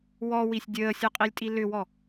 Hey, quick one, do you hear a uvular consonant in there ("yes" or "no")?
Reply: yes